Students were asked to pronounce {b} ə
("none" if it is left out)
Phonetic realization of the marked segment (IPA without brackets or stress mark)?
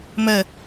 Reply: m